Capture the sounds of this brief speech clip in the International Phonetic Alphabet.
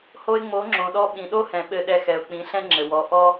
h o˧ ɪ̯ ŋ͡m o˨˦ ŋ͡ǁ õ˨ ɗ ɔ˧ ɓ ĩ˨ ɗ o˦ h ɛ̃˨ ɓ ɘ˧ ɗ ɛ˧ x ɛ˨ ʊ̯ k͡p ĩ˨˦ ɬ ɛ̃˦ ŋ͡ǁ ɘ˨ w ɔ˨˦ ʔ ɔ˦

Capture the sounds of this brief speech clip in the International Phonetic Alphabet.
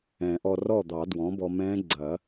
ɛ̃˨˩˦ ʔ ɔ˧ r ɔ˥˩ d̪ ɑ˨˩˦ d w ɔ̃˩˥ b ɔ˧ m ɛ̃˦˥ ɡ͡ǀ ɐ˨˩˦

